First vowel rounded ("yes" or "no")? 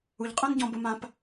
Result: yes